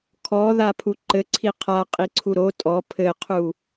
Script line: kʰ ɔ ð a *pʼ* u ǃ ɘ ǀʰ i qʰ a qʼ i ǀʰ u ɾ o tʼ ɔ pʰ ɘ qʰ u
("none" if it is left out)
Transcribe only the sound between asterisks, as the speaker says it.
pʰ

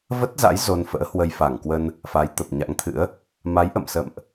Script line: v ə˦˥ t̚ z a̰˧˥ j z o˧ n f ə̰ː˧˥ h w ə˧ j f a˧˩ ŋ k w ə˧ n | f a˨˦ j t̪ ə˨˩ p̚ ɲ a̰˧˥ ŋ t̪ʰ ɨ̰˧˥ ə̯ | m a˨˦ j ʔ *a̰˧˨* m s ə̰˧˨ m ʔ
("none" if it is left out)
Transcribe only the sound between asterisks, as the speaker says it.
ə̰˧˨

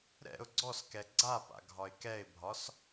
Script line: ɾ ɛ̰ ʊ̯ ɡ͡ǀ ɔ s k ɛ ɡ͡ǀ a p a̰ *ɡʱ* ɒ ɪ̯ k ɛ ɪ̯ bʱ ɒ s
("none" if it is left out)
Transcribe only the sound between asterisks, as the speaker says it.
ɡʱ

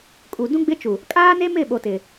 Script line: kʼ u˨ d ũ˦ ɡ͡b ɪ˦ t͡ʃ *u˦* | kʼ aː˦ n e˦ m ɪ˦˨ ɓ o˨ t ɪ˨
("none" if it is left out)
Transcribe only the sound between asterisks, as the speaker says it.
u˨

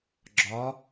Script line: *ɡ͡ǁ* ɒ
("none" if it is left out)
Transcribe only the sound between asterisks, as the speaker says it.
ɡ͡ǁ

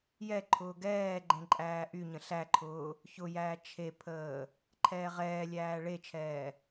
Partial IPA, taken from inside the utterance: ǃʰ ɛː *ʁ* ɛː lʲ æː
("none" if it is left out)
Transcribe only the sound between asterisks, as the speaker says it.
ʁ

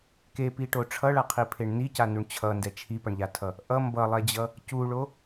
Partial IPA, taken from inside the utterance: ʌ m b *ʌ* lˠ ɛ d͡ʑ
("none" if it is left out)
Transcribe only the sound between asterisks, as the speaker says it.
ʌ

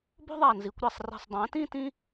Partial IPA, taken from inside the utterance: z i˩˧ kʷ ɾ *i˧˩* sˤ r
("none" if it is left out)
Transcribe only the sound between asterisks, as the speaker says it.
e˧˩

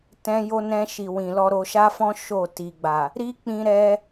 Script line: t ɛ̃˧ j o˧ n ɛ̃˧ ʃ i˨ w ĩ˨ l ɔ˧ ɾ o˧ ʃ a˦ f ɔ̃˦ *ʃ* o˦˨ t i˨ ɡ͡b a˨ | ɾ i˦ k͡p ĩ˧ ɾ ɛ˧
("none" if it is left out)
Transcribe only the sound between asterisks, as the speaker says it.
ʃ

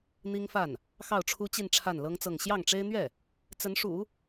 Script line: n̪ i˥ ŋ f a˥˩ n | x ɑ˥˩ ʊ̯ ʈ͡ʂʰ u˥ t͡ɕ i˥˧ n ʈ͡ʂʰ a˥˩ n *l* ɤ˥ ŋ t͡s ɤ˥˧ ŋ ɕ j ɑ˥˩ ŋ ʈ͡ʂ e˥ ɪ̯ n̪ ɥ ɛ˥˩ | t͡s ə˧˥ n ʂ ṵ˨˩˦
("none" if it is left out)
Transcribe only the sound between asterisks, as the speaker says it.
l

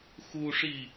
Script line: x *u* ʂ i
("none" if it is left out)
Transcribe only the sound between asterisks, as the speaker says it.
u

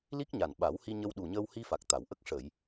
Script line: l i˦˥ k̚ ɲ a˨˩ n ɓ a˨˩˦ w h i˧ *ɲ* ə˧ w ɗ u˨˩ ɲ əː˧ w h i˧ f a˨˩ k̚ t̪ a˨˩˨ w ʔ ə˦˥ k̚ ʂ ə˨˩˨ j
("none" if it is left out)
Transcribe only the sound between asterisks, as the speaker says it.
ɲ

